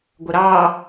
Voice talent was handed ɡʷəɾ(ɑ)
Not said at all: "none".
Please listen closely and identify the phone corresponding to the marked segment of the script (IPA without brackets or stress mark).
ɑ